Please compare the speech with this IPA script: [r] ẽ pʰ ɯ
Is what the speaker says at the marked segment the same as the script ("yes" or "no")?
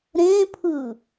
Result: no